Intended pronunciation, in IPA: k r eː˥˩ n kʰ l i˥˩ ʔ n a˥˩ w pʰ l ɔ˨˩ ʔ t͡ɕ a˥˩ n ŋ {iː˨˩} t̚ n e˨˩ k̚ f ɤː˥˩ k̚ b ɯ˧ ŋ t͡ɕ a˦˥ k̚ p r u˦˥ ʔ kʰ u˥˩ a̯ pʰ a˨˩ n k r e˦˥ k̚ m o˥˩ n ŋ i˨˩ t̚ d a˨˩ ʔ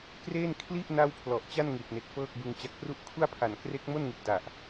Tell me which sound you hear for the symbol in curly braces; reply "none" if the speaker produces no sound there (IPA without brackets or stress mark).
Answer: i˨˩